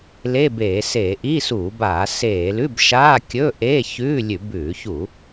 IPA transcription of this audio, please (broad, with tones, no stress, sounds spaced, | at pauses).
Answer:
l e˧˥˧ b eː˧˩˧ s eː˧˩˧ ʔ i˧˥˧ s uː˧˩˧ b aː˧˩˧ s eː˧˩˧ l ʉ˧˥˧ b ʃ aː˧˥˧ kʲ ɵ˧˥˧ ʔ eː˧˥˧ ç ʉː˧˥˧ lʲ ʉ˧˩˧ b ʉː˧˩˧ ç u˧˩˧